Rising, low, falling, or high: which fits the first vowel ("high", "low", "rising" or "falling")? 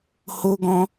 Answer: high